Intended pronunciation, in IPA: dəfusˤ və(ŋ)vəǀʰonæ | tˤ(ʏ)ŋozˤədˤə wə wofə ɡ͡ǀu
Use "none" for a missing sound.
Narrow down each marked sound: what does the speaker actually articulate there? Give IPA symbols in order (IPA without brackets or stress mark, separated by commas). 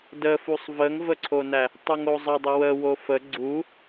ŋ, u